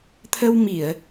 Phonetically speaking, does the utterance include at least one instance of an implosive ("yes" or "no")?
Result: no